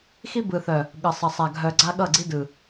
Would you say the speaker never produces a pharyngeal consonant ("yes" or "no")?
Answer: yes